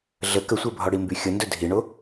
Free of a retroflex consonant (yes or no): no